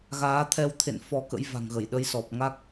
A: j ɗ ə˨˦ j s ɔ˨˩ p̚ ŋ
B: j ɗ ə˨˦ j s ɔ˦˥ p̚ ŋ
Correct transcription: A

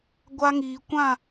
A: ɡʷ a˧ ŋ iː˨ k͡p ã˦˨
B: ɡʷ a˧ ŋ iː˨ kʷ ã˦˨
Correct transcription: B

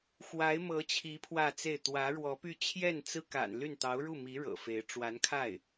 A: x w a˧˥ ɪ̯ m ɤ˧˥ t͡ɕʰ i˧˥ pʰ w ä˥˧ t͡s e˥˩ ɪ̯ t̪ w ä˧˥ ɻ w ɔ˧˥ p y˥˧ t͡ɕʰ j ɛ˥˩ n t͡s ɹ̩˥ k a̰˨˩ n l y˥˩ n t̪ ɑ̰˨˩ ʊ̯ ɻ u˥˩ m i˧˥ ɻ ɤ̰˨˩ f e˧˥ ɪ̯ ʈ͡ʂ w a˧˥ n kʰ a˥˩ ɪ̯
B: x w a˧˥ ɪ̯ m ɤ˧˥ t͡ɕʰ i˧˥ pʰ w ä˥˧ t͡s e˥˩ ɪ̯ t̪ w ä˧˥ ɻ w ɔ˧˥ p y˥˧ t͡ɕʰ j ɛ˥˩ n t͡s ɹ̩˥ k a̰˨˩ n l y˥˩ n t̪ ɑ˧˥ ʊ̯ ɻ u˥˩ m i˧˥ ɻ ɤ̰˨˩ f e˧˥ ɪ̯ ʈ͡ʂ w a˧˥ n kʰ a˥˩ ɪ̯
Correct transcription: B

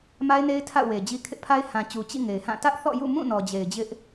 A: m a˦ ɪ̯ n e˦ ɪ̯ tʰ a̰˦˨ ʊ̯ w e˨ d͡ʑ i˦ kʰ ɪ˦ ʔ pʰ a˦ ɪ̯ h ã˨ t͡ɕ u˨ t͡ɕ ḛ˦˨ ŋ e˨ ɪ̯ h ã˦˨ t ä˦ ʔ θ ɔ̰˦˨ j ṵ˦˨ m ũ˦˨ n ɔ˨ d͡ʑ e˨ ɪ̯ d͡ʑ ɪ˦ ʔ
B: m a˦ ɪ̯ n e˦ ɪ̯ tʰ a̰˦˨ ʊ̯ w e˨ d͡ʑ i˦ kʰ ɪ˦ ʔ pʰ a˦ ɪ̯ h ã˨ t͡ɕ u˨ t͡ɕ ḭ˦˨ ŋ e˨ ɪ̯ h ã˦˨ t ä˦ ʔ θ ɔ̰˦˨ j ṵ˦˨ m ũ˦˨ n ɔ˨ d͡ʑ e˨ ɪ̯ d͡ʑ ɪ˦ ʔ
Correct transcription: B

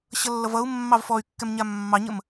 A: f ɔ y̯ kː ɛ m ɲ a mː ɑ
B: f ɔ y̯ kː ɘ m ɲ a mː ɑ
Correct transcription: A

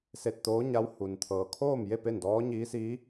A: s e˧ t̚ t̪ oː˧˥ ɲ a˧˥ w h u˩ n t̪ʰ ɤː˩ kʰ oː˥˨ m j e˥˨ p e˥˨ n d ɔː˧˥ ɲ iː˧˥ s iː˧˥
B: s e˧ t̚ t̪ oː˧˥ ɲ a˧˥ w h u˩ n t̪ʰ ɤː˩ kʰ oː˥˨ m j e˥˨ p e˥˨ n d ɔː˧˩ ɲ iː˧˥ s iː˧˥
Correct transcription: A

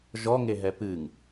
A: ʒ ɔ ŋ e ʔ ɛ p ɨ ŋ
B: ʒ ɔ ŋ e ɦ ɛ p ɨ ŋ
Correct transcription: B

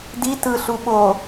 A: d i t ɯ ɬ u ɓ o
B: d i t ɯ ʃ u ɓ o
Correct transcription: A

